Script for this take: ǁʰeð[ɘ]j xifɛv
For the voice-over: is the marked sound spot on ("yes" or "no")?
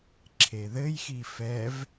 yes